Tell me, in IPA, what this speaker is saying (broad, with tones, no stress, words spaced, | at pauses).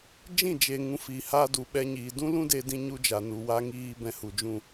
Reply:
d͡ʒĩ˦˨d͡ʒe˨ŋũ˨ fi˨ha˧ du˨ɓɛ˧ɲiː˨ dũ˦lũ˦de˧dĩ˧ ɲu˦d͡ʒa˨nu˨ wa˧ŋiː˧ bɛ̃˧hu˨d͡ʒũ˦˨